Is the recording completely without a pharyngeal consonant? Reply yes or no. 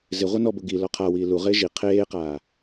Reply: yes